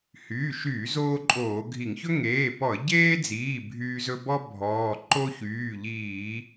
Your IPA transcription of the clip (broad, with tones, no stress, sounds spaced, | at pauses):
h yː˩˧˩ ʃ yː˧˩˧ z oː˦ ǃʼ oː˧˩˧ ɡʱ i˧˩˧ ŋ ç ɵ˦ ŋ eː˩˧˩ p ɔ˧˩˧ ə̯ ɟ eː˦ d͡z iː˩˧˩ bʱ yː˦ z ɵ˦ b ɔ˦ bʱ ɔː˩˧˩ ǃ o˦ ç yː˩˧˩ ʎ iː˧˩˧